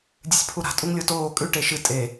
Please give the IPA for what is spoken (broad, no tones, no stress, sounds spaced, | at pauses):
dʲ ɨ sʲ pʰ u ɾ a̤ tʼ u ŋ lʲ o t oː kʼ ʉ ʈ e ʃ ɨ tʼ e